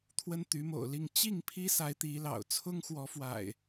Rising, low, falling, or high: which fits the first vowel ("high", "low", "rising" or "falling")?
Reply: high